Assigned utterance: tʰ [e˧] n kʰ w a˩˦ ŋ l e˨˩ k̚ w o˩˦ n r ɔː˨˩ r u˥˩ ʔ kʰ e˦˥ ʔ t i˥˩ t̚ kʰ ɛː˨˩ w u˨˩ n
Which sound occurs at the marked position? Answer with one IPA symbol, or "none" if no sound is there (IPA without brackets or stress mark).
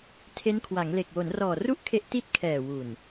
e˦˥